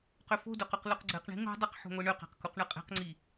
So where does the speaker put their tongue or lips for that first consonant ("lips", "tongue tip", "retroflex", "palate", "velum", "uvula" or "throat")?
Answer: uvula